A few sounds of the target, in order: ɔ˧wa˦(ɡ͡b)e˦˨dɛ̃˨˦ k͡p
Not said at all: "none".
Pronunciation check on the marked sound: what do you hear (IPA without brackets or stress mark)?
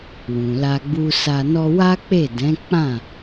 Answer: k͡p